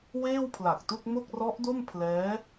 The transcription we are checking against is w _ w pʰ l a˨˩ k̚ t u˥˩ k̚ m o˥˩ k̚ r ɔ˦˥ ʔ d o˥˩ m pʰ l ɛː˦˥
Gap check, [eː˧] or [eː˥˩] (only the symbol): eː˥˩